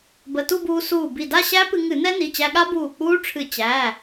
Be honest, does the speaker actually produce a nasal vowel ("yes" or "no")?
no